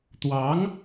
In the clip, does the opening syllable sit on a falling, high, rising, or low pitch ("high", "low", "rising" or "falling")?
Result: rising